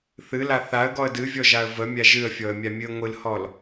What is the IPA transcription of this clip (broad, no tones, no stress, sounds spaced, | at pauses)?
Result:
θ ɨ l a θ a ə̯ ɡ ɔ ə̯ d ɨ vʲ ɔ ʒ a ə̯ v ə mʲ a ʒ ɨ ə̯ fʲ ɔ ə̯ mʲ a mʲ ɨ ə̯ ŋʷ ɨ l h ɔ l